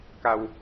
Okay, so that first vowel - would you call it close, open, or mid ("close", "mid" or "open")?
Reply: open